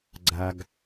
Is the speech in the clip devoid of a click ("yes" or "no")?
no